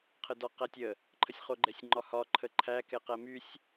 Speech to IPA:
qʰ ə d ɒ q æ tʲ ə | ǃʰ ə sʲ χ o ɡ͡ǃ ɛ sʲ ŋ͡ǃ ɒ h ɒ ǃʰ ə ǃʰ æ k ɛ q æ m y sʲ

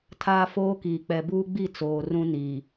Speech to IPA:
tʰ aː˦ f oː˦ k iː˨ k͡p ɛ˨ b uː˦ ɡ͡b i˦˨ t͡s oː˨ r ũ˦ n iː˨

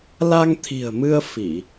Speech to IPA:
l a˧ ŋ t̪ʰ i̤˨˩ ə̯ m ɨ˧ ə̯ f i˧˩˨

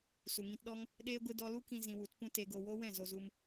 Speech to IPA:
s u˨ ŋ ĩ˧ t ɗ ɔ˦ ŋ | ɗ eː˦ ɡʷ ɨ˦ d ɔ˧ l u˦ k ĩ˧ z ĩ˧ w u˨˦ t p ũ˦ t e˧ ɡ o˧ w o˦ w ɛ̃˦˨ z o˧ z u˧ m

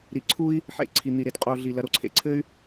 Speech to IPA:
ɾ i˩ ǀʰ u˦ i̯ | ħ ḛ˨ ǀʰ i˩ n̪ i˩ ɾ e˩ t qʼ o˨ ɮ i˩ l ɐ˨ ɾ o˨ ǀʰ ḛ˩ ǀʰ ɘ˥ y̯

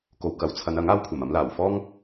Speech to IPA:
k o˨˧ w k ɐ˨˥ w t͡sʰ ɐ˨˧ n ɐ˨˥ ŋ aː˥ w kʷʰ ɐ˨˩ m ɐ˨˧ m l aː˨˩ w f ɔː˥ ŋ

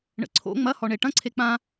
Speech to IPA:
ɳ ə̰ ǀʰ o̰ ŋ͡m ɐ h ɔ ɳ e ʈ ɐ̃ ǀʰ e k͡p ã

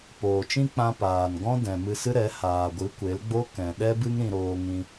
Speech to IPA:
p oː˨ t͡ʃ ĩ˦ k͡p ã˧ p aː˨ n ɡ ɔ̃˦ d ɛ̃˨ m ɨ˧ s ɨ˦ ɾ ɛ˨˦ h aː˨ ɡʷ ɨ˨˦ kʷ e˨˦ l ɡ͡b o˦ k ɛ̃˨ ɗ ɛ˦ b ɨ˦ ŋ ɾ ĩ˧ ɾ oː˧ ŋ ĩ˧

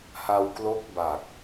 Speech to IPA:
h a˧ w k l o˦˥ k̚ b a˨˩ k̚

